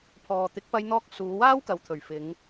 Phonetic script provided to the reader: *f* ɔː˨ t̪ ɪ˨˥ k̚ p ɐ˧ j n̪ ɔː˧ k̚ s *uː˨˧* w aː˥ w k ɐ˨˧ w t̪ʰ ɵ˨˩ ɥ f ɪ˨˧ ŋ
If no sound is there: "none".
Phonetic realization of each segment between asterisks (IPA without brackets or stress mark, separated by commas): pʰ, uː˨˧